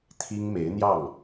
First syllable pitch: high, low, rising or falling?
high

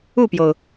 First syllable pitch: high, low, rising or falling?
falling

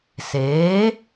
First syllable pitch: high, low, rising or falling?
rising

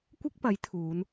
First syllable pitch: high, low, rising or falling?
high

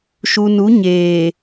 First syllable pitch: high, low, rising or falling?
low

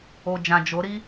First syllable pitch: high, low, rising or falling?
low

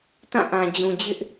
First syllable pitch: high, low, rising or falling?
falling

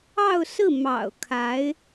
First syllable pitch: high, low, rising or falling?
falling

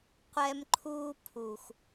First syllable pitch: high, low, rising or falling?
high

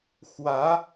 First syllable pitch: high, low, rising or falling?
rising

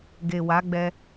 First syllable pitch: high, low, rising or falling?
low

